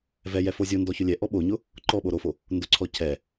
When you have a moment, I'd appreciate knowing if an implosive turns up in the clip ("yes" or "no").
yes